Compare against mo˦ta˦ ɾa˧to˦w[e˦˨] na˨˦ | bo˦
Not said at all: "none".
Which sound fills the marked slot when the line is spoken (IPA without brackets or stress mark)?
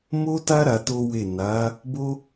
e˦˨